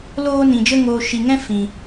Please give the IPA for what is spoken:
loː˦nĩ˧d͡ʒə˦ ŋoː˧ ʃi˧ŋɛ̃˦ fĩ˧

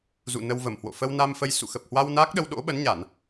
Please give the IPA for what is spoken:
zṵ˧˨nə˧wvə˧˩mhwo̰˧˨ fə˧wna˧mfə˧j sṵ˧˨xə˨˩p̚hwa˧w naː˦˥k̚ɗə˧w ɗo̰˧˥ɓə˨˦nɲa˧˩˨n

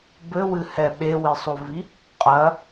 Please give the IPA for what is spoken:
bɘwɨhɛ ɓewisˤovi | qʼɐ

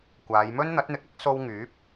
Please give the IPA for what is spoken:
kʷaː˨˧jmɵ˥n n̪ɐ˨˥t̚n̪ɪ˨˥k̚ɐ˥k̚ so˥w ŋyː˨˥p̚

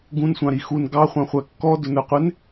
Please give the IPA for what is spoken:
ɡũnsʷɑ̃ɾi xun ɡɑχʷɑ̃χʷæ kːɔdʊnə˞qʷɪn

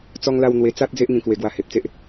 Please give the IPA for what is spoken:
t͡sɔ˧ŋla˧w n̪we˧t͡sa˦t̚ d͡ze˦ʔŋĩ˧kwe˧ ɡwa˧he˨p̚t͡se˦ʔ

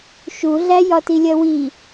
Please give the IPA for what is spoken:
ʃuɮæ jɒtilʲɜwi

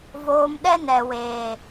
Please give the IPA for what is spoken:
voː˧mɗɛ˦nɛ˨weː˨

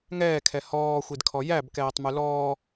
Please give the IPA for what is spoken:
ŋɛːkʰɛ hɔːxʷidkʰɔ jæbkɛːtˤmʉ lɔː

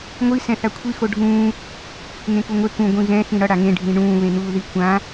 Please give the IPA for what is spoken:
ŋʷi sɛ̃θakʷʰi xoɖʱũː | ŋẽkuŋʷe kũ ɡʷĩɣɛ̃ xĩɽʌ ɽaŋẽ ɖʱĩɳũː βẽn̪uːði kʷã

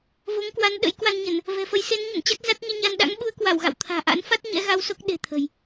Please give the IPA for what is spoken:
vo˨˦ŋkwa˨˦n ɗə̰˧˥jkwa˧nɲə˧˩˨n | vɛ̤˨˩fə˨˦jse˨˦nɲə̰˧˨n t͡ɕa˦˥k̚za˦˥t̚ɲɛ˧ɲa˧n ɗa̰˧˥ŋɓu˨˦ə̯kwa˧˩w ɣa̰˧˨wt̪ʰa̤ː˨˩ʔa̰˧˥nfa˦˥t̚ ɲɛ̰˧˥ɣa˧wso˦˥k̚ ɗe̤˨˩t̪ʰə̤˨˩j

